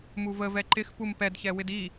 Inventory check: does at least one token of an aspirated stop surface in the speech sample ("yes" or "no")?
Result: no